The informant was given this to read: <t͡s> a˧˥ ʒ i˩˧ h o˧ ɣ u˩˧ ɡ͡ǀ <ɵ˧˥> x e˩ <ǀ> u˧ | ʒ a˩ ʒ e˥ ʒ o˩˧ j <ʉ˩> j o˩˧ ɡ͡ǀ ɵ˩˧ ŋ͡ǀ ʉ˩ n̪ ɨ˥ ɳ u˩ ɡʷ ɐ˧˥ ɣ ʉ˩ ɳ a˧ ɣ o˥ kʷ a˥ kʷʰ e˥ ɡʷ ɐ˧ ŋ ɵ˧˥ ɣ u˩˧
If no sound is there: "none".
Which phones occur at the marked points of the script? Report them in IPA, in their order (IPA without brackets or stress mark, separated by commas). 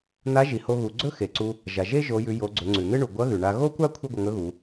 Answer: n̪, ɵ˥, ǀ, ʉ˩˧